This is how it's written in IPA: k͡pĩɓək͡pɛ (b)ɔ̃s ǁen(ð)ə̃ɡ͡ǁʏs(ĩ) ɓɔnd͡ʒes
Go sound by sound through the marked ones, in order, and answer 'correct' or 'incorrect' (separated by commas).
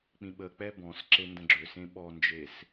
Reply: correct, incorrect, incorrect